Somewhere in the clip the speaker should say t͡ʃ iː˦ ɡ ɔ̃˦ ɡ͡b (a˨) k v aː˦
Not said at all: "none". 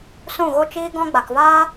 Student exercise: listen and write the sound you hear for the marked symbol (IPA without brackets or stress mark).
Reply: a˨